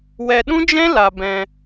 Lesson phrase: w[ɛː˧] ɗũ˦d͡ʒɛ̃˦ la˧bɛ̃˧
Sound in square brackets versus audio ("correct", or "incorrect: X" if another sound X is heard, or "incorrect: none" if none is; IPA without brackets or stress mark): incorrect: ɛ˧